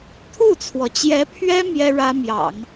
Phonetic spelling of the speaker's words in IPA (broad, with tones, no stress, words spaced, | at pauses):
t̪ʰu˥˩t͡sʰwɔ˩t͡ɕjɛ˧˥pʰɥɛ˥ mjɛ˥ɻä˥mjɑ̰˨˩˦ŋ